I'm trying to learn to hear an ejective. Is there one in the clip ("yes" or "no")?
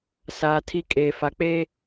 yes